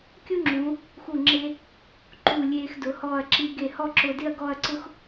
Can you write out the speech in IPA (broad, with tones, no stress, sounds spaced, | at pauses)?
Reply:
kʲ u˥ ŋ͡ǁ ũ˩˧ | x u˧˩ ŋ͡ǁ e˧ | ǃ uː˧˩ lʲ eː˧ x d ʊ˩˧ h ɔː˧˩ ɐ̯ ǁ i˧ ɡ e˧˩ h ɔ˥˧ ǁ ʊː˧ d ɪ˥˧ ɐ̯ ɡ ɔ˥˧ ɐ̯ ǀ ʊ˥ x